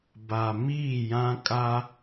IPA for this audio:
b a˨ m iː˦˨ j ã˦ kʼ a˦

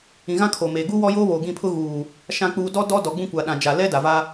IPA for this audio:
ĩ˨ ɣ ã˦ kʰ oː˨ m eː˨ ɡ u˦ w ɔ˦ j oː˦ β oː˨ ɡ ĩ˦˨ pʰ ʊ˦ ɣ uː˨ | ʃ ã˨ k͡p uː˨ d ɔ˦ d ɔ˦ d ɔ˨ ɡ͡b ũ˦ kʷ a˨ ɗ ã˨ d͡ʒ a˨ l ɛ˦ d a˨ v a˦

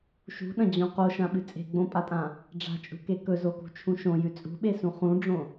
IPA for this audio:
ʃ ṳ ɗ ɐ̃ d͡ʑ õ q o ʃ ã ɓ ɨ t͡sʼ e̤ ɡ͡b õ pʼ a tʼ ã | ɖ͡ʐ a̤ t͡ʃʼ ṳ k e k ɵ z o k ṳ t͡ʃʰ ũ ʃ õ j ʉ t͡sʼ ṳ ɓ e s ũ χ ũ ɖ͡ʐ õ

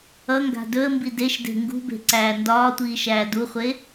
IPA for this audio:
ʌ ŋ ɡ a̤ d ɵ ə̯ m b i d e ʃ d e̤ ŋ ɡ ṳ b e̤ ǀ æː n d ɒː tʷ iː ʃ æː d u χʷ e

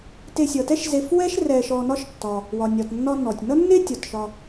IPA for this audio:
t e˨ sʲ ʌ˩ t ɛ˦ ʃ z e˨ f w ɛ˥ ʃ r ɛ˨ ʃ ɔ˨ n ɒ˦ ʃ tː ɒ˩ | w ɒ˩ nʲ ɒ˩ t nː ɒ˦ n ɔ˩ tʲ n ʌ˦ nː e˦ tʲ ɒ˩ t ʃ ɒ˨

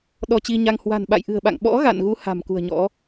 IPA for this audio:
ɗ ɔ˧ t͡ɕ i˧ ɲ a˧ ŋ h w a̤˨˩ n ɓ a̰˧˨ j ʔ ɨ̤˨˩ ə̯ ɓ a̰˧˨ ŋ ɓ ɔ̰˧˥ ɣ a̰˧˨ n ɣ u˨˦ h a̤˨˩ m k ṳ˨˩ ə̯ ɲ ɔ̰˧˥

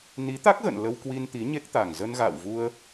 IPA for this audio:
n i˨˦ t̪ a˦˥ k̚ ɣ ə̰˧˨ n l ə˧ w k w i˧ n t̪ i˨˦ ɲ e˦˥ k̚ t̪ a˨˩ ŋ z ə˧ n ɣ a̰ː˧˨ w v u˧ ə̯

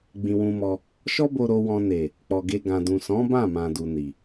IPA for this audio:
ɡ͡b ĩ˧ w ũ˧ m ɔ˧ | ʃ ɔ˦ b o˧ ɾ o˧ w ɔ̃˧ n e˨ | k͡p ɔ˨ ɡ e˧ ɡ ã˨ d ũ˨ s ɔ̃˨˦ b ã˦˨ m ã˨ d u˨ n i˨

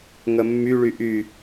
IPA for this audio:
ŋ ə mː y ɭ y ʔ y

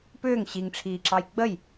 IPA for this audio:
p ʏː ŋ ɕ i ŋ ʈ͡ʂʰ iː ǁ ɑ j ɡ͡b ə j

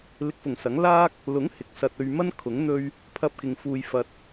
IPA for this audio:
l ɪ˨ k̚ f ʊ˨˩ ŋ s ɐ˨˥ ŋ l aː˥ k̚ | l ʊ˨˥ ŋ h ɪ˨ k̚ s ɐ˧ t̚ ɵ˧ ɥ m ɐ˥ n kʰ ʊ˨˥ ŋ n̪ ɵ˧ ɥ | pʰ ɐ˧ p̚ k ɪ˨ ŋ f uː˨ j f ɐ˨ t̚

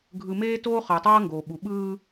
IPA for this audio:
ɡʱ ɯ˨ m eː˦ t oː˦ χ ʌː˨ tˤ ʌː˦ ŋ ɡ oː˨ ɓ u˨ ɓ ɯː˦

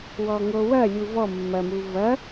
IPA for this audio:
w ɔ ŋ o w ɐ lʲ u v ɔ mː ɐ m u v ɐ

